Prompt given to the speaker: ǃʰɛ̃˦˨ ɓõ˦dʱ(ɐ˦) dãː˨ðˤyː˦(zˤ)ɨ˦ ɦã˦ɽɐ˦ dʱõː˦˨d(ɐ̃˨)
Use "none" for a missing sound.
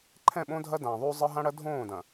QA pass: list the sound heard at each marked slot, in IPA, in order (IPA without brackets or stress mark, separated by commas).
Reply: ɐ˦, zˤ, ɐ̃˨